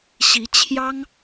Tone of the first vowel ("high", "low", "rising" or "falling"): rising